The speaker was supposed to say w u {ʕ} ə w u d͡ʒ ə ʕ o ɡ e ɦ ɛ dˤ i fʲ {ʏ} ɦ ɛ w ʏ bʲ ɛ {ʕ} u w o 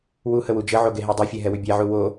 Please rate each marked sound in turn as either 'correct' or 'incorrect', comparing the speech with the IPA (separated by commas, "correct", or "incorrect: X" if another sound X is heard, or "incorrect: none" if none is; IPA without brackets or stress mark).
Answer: incorrect: h, incorrect: ɛ, correct